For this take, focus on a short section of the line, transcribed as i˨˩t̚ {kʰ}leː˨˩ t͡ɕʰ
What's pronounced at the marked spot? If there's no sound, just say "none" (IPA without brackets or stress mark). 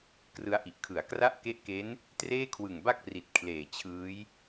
kʰ